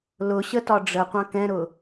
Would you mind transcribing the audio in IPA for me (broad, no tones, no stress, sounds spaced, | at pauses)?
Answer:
l ʊ ɕ ə t ɒ ɖ͡ʐ ə qʷ ɑ̃ k ɛ̃ ɾ ʊ